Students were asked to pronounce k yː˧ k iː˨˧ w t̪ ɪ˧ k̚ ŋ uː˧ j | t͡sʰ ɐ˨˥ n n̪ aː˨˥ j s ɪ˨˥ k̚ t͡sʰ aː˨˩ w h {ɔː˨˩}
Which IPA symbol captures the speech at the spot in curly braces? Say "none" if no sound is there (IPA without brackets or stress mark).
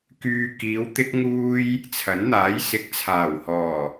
ɔː˨˩